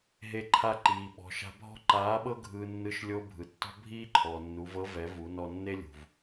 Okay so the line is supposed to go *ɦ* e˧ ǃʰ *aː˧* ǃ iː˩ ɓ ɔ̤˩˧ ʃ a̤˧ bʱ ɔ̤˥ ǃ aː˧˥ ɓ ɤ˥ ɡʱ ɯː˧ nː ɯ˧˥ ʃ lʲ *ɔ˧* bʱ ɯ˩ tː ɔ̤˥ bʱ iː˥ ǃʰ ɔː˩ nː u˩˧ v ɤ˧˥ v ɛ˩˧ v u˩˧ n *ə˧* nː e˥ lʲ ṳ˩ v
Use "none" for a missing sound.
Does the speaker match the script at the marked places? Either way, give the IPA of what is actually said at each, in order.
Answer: ɦ, a˧, o˧, ɔ˧

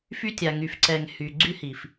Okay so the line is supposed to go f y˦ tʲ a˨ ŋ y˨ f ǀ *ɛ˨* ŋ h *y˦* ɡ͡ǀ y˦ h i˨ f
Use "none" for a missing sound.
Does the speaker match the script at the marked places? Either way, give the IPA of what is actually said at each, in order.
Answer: ɛ˨, y˨

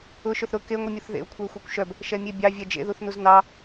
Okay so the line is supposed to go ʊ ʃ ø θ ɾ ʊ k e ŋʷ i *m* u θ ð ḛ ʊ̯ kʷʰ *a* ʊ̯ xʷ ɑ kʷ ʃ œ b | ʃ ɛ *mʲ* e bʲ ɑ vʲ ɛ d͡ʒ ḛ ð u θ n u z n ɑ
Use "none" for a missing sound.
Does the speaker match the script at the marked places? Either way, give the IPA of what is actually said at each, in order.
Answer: mʲ, a, mʲ

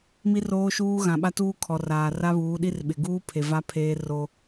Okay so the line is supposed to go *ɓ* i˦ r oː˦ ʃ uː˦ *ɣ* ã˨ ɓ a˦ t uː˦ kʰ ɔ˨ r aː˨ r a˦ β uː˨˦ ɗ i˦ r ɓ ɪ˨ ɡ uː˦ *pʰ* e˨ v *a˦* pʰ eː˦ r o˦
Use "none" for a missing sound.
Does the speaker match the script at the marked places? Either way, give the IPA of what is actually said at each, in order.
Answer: m, ɣ, pʰ, a˦

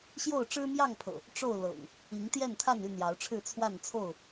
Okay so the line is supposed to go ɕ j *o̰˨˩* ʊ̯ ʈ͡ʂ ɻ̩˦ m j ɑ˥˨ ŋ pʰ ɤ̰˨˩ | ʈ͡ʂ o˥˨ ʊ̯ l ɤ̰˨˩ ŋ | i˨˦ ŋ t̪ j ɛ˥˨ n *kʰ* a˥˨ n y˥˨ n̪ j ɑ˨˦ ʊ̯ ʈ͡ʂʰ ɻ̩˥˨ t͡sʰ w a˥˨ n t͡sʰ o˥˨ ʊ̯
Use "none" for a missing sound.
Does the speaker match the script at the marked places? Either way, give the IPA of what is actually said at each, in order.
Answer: o˥˨, t̪ʰ

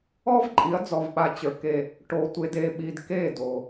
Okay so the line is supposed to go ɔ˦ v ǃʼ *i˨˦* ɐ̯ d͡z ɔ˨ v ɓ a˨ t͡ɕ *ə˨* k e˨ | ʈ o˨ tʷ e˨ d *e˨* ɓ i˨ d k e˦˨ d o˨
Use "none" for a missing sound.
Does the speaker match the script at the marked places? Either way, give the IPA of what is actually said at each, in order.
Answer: i˨˦, ə˞˨, e˨

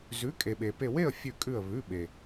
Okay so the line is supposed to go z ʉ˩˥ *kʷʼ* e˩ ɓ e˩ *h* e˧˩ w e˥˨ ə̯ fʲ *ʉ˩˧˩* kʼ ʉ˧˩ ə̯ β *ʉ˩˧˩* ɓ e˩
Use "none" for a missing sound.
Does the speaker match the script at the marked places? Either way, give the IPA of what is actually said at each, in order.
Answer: kʼ, p, ʉ˧˩, ʉ˩˧˩

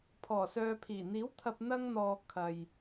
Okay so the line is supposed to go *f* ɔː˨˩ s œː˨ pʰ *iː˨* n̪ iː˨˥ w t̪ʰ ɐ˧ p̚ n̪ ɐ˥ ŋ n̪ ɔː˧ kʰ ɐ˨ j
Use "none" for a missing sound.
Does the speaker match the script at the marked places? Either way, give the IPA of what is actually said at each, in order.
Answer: pʰ, iː˨˩

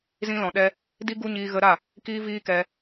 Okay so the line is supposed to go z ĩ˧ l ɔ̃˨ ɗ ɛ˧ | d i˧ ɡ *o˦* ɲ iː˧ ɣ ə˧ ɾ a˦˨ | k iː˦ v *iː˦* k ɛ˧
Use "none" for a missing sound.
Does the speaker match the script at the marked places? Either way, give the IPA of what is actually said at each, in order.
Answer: u˦, iː˦

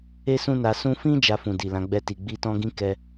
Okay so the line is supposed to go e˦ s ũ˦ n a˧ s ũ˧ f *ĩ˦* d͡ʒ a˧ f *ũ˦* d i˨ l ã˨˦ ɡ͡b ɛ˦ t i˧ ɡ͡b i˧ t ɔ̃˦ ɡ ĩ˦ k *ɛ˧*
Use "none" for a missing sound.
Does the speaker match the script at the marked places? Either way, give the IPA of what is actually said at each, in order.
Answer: ĩ˦, ũ˨, ɛ˧

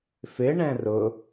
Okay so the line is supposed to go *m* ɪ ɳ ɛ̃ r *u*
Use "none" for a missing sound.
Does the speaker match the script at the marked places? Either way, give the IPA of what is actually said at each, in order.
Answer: f, ʊ

